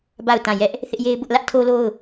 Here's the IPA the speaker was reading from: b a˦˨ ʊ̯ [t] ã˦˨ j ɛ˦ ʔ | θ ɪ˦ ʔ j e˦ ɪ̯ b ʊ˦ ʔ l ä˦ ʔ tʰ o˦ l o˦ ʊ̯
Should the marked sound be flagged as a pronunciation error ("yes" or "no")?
no